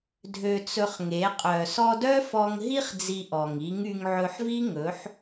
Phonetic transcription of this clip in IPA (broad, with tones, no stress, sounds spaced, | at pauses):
dʱ ø˧ t͡s ɵ˧ χ ŋ e˨˦ qʼ œ˨ s ɔ˧ d œ˦ f ɔ˧ ŋ ɦ i˦ χ d͡z i˧ ʔ ɔ˨ ŋ i˨˦ ŋ y˧ ŋ ʕ ɵ˧ ħ v i˦ ŋ ɵ˨˦ ħ